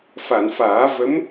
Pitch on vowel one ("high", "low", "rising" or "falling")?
low